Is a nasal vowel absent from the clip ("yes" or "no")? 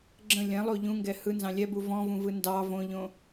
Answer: no